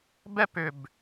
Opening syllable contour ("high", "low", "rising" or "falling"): high